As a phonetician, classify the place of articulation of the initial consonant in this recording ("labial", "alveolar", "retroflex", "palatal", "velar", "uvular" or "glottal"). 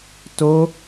alveolar